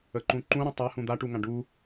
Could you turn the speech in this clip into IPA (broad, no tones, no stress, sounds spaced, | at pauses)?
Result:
ə ǃ ũ ǃ ũ ɾ ũ tˤ a h ũ d̪ a ʈ u ŋ ã ɖ u